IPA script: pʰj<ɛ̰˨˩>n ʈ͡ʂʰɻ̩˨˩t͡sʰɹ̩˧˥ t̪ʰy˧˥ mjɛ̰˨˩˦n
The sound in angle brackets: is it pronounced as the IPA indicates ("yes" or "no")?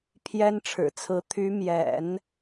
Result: no